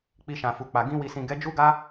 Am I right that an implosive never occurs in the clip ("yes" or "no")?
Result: yes